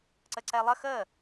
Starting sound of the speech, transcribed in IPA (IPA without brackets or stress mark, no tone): ǀ